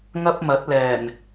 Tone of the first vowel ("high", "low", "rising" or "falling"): high